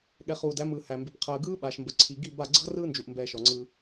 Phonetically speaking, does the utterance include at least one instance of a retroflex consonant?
no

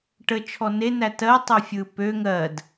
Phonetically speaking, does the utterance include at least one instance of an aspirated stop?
yes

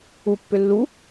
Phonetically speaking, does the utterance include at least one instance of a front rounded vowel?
yes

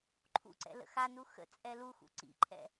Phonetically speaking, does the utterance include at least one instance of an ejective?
yes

